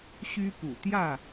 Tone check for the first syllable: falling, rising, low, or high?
high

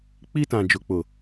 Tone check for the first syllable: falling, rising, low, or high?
high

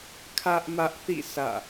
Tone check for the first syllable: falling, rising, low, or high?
high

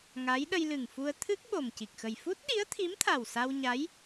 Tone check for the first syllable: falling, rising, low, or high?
rising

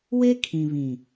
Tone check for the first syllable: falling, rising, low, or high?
high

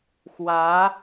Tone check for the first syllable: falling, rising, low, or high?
rising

